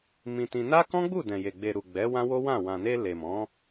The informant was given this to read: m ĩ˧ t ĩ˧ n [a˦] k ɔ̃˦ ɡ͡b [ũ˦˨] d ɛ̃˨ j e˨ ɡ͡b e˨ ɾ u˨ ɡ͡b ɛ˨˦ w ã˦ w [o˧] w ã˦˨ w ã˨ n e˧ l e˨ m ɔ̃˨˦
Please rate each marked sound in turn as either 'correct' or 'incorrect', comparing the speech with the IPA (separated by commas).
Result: correct, incorrect, incorrect